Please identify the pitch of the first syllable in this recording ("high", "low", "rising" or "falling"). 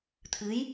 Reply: rising